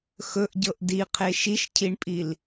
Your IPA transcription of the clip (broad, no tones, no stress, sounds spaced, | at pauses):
x ɵ ʔ ɟ ɤ ʔ d i qʰ e ʃ i ʃ cʰ i ɳ pʼ i l